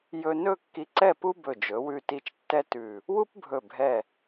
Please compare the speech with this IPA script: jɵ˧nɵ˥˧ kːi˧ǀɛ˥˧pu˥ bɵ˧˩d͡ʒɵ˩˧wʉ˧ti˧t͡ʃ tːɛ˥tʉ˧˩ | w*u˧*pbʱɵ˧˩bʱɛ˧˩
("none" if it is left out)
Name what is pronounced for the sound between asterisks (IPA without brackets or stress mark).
u˥